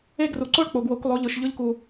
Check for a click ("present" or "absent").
present